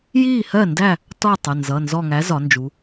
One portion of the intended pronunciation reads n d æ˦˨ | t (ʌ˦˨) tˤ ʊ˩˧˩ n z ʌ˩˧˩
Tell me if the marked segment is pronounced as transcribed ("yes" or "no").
no